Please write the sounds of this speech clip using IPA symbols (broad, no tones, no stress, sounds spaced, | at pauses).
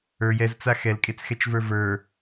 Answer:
ə˞ j ɛ z t͡s a x ɛ l kʼ e t͡s x ɛ t͡ʃ v ə˞ v ə˞